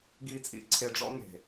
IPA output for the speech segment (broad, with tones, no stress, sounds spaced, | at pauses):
ɡ i˨ t͡sʼ ḭ˨ ǀʰ e˨ ɖ͡ʐ ɔ̰˦ ŋ e̤˨